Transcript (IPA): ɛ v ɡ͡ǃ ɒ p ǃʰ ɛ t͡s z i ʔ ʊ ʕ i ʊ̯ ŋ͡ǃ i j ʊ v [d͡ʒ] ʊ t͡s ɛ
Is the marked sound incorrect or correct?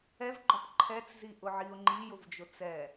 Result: correct